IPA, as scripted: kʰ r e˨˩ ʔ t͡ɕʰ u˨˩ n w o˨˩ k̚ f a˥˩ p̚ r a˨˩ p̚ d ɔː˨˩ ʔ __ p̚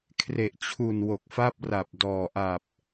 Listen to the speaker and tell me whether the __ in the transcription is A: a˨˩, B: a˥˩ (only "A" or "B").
A